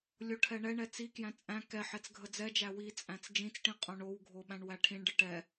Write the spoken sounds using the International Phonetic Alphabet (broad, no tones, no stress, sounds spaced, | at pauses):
lʲ o ʈʰ ɛ ɳ ɛ ɳ ɛ t͡s i k j æ̃ t͡sʼ æ̃ k ɛ ħ ɛ t͡s ɡʱ ə d͡z ɛ d͡ʒ æ w i t͡sʼ æ̃ t͡s d͡ʒ ĩ t͡s ʈ ĩ qʼ õ ɳ o w ɡʱ o ɓ æ̃ ɳ w æ ʈʰ ĩ ɳ ɖ ə ʈ ɛ